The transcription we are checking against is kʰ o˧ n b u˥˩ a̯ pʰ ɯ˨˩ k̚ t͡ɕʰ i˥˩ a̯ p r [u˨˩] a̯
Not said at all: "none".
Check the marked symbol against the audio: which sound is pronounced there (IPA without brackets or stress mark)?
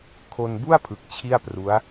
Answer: u˦˥